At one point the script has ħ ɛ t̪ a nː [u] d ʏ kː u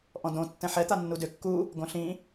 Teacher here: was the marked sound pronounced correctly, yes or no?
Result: yes